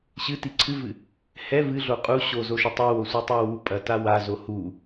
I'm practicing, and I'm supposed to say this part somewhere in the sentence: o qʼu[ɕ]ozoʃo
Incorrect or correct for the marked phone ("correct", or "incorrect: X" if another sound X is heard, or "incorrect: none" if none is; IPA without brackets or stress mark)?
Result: correct